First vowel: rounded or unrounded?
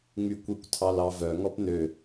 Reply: rounded